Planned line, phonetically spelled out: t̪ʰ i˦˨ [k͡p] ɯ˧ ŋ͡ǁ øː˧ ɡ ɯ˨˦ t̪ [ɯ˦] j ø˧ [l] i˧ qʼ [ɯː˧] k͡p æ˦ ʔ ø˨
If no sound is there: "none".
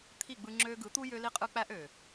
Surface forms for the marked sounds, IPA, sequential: ɡ͡b, u˦, l, ɯ˧

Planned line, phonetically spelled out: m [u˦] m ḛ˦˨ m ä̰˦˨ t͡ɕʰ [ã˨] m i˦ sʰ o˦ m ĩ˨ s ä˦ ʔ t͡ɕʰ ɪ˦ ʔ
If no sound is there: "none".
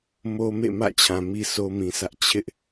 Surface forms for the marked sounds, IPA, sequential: o˦, ã˨

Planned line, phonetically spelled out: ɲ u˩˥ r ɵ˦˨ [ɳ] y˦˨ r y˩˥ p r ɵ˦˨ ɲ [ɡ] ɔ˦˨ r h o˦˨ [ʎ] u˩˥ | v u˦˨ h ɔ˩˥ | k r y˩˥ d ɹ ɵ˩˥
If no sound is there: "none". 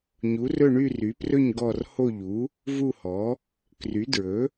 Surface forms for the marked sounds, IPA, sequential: ɳ, ɡ, ʎ

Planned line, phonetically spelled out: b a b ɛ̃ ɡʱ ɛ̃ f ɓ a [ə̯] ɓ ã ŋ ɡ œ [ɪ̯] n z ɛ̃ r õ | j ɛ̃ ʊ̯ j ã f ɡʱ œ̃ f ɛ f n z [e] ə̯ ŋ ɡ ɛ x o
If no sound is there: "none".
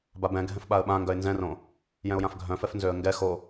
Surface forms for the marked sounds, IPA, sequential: ə̯, ɪ̯, ø

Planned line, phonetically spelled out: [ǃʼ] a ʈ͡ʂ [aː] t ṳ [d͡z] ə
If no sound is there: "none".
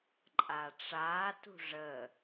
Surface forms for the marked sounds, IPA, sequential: ǃʼ, aː, ʐ

